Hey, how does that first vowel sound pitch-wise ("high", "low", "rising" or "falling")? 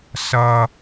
low